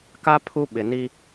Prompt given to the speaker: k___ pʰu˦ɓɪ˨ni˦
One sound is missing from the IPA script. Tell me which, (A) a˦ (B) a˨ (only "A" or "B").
A